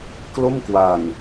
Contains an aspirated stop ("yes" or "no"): no